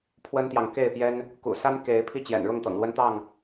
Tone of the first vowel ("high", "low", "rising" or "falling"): high